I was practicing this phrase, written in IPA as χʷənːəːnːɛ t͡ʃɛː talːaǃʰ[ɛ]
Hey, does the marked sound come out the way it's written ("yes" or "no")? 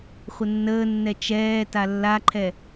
yes